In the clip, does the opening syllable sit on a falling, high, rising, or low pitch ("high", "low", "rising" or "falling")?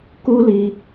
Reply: high